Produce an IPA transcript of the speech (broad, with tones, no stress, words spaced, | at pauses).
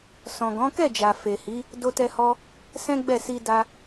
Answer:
sɔ̃˨ɡɔ̃˨˦kɛ˦˨d͡ʒa˨ fe˨hi˨˦ | do˧tɛ˧hɔ˧ | sɛ̃˦ɡ͡bɛ˦˨ si˧ da˧